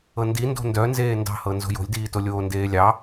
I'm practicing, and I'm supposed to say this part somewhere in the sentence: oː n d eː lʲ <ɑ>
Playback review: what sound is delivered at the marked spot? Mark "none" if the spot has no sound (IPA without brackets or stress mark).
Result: ɑ